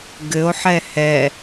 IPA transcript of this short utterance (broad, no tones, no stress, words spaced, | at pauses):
ɡɘo̯ħɛ hɛ